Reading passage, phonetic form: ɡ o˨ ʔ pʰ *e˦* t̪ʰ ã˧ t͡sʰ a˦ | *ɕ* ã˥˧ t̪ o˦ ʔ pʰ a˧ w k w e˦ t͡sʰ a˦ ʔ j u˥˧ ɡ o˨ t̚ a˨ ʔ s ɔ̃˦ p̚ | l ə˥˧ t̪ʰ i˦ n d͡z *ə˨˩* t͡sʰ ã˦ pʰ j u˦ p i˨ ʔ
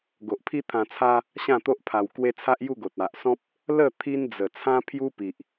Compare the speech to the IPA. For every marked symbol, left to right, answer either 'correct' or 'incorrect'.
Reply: incorrect, correct, correct

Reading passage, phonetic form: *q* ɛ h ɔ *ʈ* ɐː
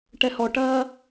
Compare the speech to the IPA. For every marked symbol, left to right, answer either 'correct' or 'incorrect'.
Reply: incorrect, correct

